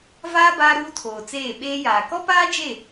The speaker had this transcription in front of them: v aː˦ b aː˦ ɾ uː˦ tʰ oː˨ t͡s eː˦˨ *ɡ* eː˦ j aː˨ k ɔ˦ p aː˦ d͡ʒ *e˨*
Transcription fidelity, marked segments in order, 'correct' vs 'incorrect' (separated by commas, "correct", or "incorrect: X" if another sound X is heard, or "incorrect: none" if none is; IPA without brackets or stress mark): incorrect: ɓ, incorrect: e˦˨